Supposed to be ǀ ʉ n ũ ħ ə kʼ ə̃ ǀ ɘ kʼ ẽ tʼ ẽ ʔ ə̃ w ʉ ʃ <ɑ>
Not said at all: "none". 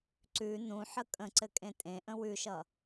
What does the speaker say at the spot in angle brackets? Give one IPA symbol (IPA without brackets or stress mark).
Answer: ʌ